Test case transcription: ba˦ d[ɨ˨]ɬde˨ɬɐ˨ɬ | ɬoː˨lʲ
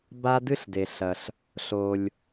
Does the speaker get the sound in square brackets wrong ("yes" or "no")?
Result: yes